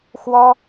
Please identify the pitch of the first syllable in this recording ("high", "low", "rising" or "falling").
high